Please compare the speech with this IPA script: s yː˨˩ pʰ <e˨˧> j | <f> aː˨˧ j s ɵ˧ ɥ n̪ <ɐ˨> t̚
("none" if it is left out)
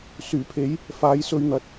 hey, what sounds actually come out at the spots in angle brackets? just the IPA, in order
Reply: e˨˥, f, ɐ˨˥

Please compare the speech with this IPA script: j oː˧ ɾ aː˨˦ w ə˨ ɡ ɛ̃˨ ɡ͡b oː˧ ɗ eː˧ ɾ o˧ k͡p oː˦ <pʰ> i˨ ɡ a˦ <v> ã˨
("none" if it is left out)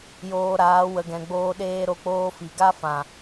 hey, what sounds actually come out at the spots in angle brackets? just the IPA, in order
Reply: f, f

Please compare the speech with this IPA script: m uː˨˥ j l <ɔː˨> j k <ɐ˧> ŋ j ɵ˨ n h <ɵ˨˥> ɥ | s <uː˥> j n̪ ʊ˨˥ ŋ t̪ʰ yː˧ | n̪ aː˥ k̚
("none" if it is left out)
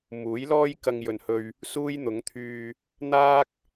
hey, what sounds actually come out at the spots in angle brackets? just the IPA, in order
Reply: ɔː˥, ɐ˧, ɵ˧, uː˥

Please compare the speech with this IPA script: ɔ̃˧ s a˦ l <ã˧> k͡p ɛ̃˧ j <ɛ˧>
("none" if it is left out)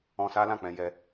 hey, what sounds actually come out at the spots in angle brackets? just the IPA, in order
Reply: ã˦˨, ɛ˦

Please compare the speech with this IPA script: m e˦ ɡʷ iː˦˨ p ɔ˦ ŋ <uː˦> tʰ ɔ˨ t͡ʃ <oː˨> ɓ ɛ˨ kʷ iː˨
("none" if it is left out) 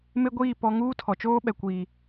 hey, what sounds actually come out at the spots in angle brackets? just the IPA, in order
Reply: uː˦, oː˦

